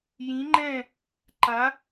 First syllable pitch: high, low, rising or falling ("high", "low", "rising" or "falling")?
rising